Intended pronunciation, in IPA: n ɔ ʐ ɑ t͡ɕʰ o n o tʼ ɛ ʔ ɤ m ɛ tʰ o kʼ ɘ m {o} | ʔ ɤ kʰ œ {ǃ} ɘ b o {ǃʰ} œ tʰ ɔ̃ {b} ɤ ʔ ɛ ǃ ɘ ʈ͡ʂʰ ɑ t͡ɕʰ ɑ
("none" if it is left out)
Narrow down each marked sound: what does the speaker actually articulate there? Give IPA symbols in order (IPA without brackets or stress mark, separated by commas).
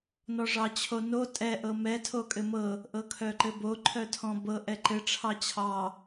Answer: ɤ, ǃ, ǃʰ, b